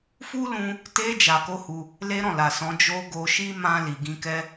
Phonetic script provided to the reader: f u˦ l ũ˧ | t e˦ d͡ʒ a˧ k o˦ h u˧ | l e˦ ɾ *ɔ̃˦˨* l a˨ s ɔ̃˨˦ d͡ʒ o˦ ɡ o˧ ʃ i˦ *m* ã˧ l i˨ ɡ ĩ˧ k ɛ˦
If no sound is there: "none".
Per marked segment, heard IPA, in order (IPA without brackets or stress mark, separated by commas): ɔ̃˦˨, m